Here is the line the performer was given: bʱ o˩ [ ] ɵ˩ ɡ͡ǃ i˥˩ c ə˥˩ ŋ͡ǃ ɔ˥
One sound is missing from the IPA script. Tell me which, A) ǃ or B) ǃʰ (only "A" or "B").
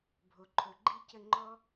B